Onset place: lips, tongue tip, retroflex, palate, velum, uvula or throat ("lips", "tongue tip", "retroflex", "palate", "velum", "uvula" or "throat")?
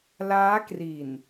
tongue tip